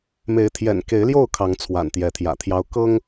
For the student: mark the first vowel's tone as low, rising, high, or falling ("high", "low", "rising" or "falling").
rising